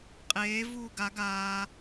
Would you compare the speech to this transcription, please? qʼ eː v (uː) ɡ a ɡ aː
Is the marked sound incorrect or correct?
correct